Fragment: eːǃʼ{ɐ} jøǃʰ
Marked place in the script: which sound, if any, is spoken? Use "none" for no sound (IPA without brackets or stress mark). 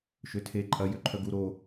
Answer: ɐ